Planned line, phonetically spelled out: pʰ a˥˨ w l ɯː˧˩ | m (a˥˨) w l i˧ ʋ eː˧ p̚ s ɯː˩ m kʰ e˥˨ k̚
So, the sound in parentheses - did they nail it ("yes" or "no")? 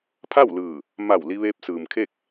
no